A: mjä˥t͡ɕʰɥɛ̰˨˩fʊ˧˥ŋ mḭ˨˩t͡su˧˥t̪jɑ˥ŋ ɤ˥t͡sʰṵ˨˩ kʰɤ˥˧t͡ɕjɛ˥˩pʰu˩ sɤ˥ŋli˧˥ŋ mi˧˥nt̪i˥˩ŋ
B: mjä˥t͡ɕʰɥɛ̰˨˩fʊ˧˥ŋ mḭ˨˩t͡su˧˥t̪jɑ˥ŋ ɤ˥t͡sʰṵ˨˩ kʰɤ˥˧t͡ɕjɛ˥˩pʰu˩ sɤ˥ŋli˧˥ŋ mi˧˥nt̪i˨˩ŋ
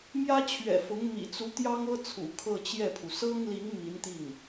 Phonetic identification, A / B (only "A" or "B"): A